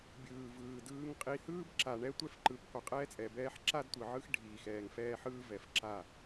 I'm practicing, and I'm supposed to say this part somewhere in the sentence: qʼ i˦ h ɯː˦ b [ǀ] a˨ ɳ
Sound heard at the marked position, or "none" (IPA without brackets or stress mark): ǁ